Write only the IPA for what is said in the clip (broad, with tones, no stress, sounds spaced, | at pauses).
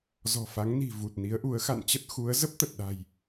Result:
z ɔ̤˨˩ f a˨˦ ŋ n i̤˨˩ v u˨˩ t̚ n i˨˦ ə̯ ʔ u˨˦ ə̯ x a̰˧˨ n t͡ɕ ə˦˥ t̚ x u˨˦ ə̯ z ə˦˥ p̚ t̪ ə˨˩ t̚ ɗ a̤˨˩ j